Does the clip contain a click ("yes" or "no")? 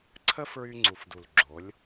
yes